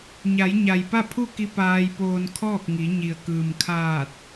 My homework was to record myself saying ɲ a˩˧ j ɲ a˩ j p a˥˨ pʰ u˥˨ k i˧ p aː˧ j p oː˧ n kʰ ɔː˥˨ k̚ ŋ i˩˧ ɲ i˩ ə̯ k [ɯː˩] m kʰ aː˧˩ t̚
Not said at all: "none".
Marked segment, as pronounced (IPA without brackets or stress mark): ɯː˩